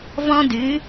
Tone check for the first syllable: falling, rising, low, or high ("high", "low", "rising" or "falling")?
high